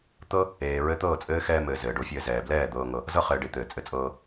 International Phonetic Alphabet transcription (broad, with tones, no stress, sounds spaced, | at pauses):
t̪ ɤ˦ | eː˨ ɹ ɘ˧ t̪ ɤː˦˨ t͡sʼ ɘː˦ x ɛː˧ m ɘː˨ z ɘː˨ ɖ o˧ fʲ ɘː˧ z ɛː˨ b l ɛː˦˨ d̪ ɤː˧ ŋ ɤ˧ | z ɤ˧ χ ɘː˨ ɖ e˨ t̪ ɘː˨ t͡sʼ ɘ˧ t͡sʼ ɤː˧